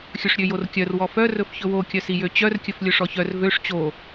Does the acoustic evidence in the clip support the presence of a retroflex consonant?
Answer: yes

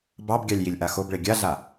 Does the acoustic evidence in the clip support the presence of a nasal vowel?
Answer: no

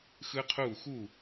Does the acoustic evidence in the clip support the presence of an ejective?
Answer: no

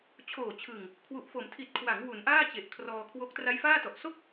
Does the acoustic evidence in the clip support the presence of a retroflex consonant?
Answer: no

